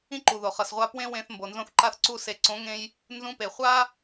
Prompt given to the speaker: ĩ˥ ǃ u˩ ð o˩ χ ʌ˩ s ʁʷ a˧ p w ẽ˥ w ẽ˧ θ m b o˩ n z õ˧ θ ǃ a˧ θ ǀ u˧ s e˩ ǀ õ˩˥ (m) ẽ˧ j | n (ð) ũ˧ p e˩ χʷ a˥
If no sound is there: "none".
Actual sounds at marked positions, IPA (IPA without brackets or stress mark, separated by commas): ŋ, z